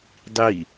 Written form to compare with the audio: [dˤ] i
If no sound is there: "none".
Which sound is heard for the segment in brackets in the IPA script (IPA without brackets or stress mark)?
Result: dˤ